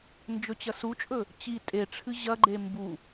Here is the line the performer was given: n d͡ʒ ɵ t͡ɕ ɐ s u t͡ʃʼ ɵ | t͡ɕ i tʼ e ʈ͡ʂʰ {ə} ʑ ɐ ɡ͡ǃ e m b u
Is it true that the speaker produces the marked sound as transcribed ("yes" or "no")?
no